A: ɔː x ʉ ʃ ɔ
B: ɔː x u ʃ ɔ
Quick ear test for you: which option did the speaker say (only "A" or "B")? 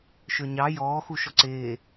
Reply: B